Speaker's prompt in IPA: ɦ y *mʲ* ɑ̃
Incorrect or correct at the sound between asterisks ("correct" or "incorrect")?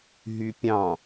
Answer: incorrect